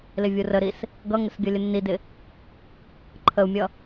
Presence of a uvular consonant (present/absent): absent